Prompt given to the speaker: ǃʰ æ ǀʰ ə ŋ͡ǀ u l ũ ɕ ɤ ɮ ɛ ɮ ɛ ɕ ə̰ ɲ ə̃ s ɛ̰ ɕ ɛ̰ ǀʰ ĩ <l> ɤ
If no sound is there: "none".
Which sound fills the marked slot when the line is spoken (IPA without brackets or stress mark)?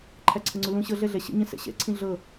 ɮ